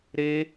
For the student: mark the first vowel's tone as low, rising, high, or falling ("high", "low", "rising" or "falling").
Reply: high